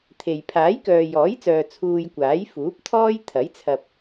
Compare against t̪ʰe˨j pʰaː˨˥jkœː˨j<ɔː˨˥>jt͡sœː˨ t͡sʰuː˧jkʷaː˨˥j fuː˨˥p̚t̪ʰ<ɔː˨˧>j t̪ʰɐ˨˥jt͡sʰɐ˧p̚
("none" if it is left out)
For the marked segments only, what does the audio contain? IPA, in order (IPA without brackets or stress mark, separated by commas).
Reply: ɔː˨˥, ɔː˥